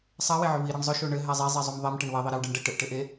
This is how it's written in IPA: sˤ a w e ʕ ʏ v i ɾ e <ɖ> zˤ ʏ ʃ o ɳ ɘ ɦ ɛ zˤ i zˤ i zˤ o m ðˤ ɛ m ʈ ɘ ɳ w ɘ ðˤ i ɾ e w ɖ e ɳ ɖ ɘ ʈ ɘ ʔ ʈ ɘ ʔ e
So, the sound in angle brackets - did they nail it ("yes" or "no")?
no